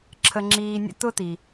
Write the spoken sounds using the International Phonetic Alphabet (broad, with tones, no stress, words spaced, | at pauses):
ǁʰə˧ŋ͡ǁiː˧nʲə̰˥ tʊ˥ti˩